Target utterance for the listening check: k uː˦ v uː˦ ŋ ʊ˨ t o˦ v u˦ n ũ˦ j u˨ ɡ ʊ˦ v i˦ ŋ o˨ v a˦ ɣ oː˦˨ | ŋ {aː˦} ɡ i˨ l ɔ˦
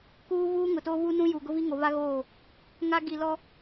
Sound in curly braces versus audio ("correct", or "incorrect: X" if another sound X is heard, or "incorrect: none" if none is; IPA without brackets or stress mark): incorrect: a˦